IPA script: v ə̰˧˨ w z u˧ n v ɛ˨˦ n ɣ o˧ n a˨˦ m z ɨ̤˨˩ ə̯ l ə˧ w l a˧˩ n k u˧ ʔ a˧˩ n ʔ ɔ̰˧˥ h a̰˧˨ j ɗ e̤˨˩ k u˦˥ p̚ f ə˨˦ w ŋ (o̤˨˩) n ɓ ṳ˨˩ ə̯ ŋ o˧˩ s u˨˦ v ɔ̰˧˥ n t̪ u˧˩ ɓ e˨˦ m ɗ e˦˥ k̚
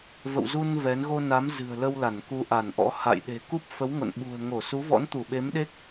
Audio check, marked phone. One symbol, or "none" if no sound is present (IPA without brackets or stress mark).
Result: o̰˧˨